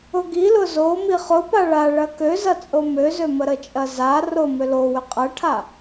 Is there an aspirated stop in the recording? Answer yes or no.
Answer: yes